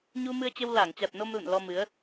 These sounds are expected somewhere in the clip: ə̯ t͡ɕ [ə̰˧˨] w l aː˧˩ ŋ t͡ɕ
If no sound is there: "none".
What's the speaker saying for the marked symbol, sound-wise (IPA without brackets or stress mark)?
ə˧